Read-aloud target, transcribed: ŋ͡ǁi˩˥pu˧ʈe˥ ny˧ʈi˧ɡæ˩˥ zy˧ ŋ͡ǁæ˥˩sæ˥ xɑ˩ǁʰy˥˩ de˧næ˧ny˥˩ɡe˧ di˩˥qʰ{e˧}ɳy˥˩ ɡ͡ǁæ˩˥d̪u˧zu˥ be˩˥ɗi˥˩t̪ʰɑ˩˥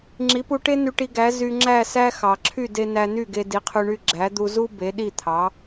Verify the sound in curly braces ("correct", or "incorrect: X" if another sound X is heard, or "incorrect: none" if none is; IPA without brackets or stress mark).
incorrect: y˧